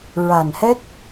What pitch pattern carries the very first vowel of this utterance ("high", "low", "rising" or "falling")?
low